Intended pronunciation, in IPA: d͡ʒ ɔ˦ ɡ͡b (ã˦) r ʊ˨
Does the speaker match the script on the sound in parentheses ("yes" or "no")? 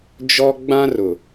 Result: yes